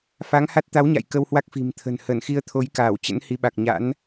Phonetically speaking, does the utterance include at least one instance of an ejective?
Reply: no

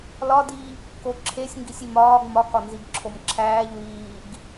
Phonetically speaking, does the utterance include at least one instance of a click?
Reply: yes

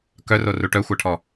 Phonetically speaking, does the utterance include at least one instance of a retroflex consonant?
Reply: yes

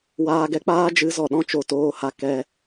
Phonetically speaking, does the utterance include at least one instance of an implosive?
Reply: yes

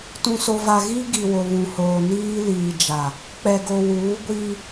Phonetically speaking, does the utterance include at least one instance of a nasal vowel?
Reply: yes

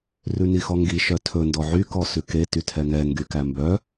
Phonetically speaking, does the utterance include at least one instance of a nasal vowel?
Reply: no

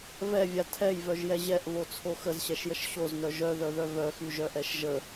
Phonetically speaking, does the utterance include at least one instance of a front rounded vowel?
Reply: yes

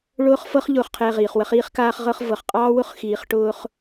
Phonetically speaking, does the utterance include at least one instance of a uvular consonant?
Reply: yes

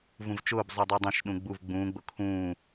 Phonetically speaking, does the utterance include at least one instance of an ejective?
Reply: no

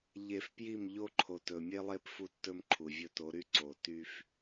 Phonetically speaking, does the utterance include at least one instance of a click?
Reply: yes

